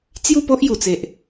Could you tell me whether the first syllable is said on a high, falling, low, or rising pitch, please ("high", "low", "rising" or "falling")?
falling